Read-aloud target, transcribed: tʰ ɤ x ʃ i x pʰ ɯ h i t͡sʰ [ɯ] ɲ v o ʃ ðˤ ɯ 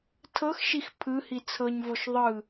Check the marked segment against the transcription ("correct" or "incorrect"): incorrect